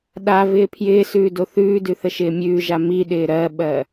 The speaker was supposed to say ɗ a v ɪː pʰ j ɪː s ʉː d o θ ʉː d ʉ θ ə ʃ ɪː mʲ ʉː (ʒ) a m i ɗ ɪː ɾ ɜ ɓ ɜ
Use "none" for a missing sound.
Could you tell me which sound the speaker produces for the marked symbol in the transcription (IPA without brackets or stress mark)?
ʒ